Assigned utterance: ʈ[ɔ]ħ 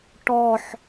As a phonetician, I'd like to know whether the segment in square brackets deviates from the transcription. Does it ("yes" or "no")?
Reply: no